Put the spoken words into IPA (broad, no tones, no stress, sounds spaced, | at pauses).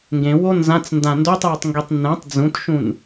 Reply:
ŋ ɡ ẽ w o n z ã t͡s n d ã n d o tˤ j e tˤ ŋ ɡ i tˤ n ɛ̃ tˤ d͡z ũ t ʃ ũ n